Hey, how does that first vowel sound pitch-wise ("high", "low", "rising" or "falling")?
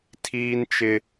high